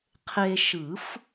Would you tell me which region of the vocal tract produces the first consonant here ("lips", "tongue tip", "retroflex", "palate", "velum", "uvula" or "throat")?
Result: uvula